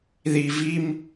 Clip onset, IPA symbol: ð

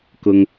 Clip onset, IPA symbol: k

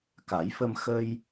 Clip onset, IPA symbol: k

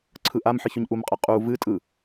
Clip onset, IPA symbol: ǀʰ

